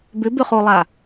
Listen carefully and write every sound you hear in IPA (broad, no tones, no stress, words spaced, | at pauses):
bʏbʏχolˠa